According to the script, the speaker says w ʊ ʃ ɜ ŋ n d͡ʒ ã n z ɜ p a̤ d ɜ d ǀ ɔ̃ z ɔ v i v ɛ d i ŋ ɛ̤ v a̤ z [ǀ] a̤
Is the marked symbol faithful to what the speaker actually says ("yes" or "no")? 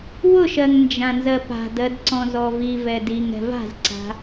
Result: yes